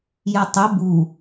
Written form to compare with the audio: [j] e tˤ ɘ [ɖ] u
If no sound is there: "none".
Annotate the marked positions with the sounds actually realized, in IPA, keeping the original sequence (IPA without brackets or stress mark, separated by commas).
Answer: j, b